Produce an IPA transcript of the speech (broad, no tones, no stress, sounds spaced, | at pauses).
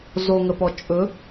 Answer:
z o ŋ ə p ɔ t͡ʃʼ ɵ